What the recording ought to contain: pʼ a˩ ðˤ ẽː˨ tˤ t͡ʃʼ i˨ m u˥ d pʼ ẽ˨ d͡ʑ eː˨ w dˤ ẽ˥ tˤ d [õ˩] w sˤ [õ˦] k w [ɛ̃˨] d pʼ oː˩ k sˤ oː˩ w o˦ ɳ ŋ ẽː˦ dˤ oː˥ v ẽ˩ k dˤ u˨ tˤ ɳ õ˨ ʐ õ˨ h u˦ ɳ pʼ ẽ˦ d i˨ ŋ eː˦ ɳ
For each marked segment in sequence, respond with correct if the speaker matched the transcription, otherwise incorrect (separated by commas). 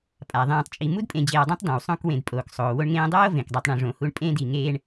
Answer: correct, correct, incorrect